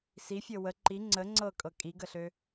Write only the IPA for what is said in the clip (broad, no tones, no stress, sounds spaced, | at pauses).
s i fʲ ɤ w ə ǃ i ŋ͡ǀ ə ŋ͡ǀ ɤ kʼ ɤ kʼ i ɡ ə ɬ ø